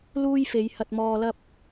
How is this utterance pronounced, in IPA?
l uː˥ j f e˨˧ j h ɐ˧ t̚ m ɔː˧ l ɐ˥ p̚

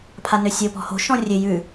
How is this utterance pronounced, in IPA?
pʰ a n ø sʲ o p ɔ̤ h o̤ ʃ ɔ̃ rʲ ø j ʉ

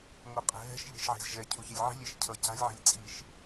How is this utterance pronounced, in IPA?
ŋ o qʼ ɛ̤ ɦ ɛ̤ ʃ ʎ e̤ ʃ ʕ e̤ z ʒ ɛ cʰ u ç e lʲ ʕ i̤ lʲ e ʃ cʰ ʌ c a̤ lʲ ʕ ɛ̤ lʲ t͡sʼ i ʃ

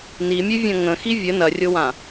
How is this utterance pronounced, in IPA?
n i mʲ ʉ vʲ ɐ̃ ŋ ə̃ x i vʲ ə n ɐ rʲ o w ã

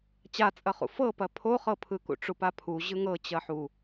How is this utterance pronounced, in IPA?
t͡ɕ a t͡sʼ ɐ χ ṵ f ɤ p ɐ pʰ o χ ɤ pʰ ɯ k ṵ ʈ͡ʂ u p a pʰ u ʑ ɯ ŋ ɤ t͡ɕ ɐ ħ u

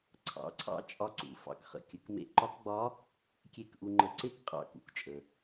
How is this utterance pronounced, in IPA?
ǀʰ ɑ̰˩˧ ǀʰ ɑ̰˧˥ t͡ʃʼ ɒ˧ ǀ ṵ˩ f ɑ̰˩˧ k χ ə̰˩ kʲ ə˩˧ k m ḛ˧ ǃ ɒ˧˥ k ɡ͡b ɒ˧˥ | kʲ e˧ k ʔ u˧ ŋ͡ǃ ə˧ ǀ e˥ k qʼ ɑ̰˧ k ṵ˩˧ k t͡ʃʼ ə˩

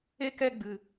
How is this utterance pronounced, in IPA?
e˦ k ɛ˦ ɡ͡b ɨ˧

